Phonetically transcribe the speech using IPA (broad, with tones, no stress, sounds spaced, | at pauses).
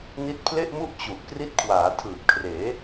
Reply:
n i˦˥ t̚ pʰ l e˥˩ ʔ m u˥˩ ʔ t͡ɕ u˨˩ ʔ k r i˦˥ t̚ kʰ w aː˩˦ tʰ ɯː˨˩ p̚ kʰ r eː˩˦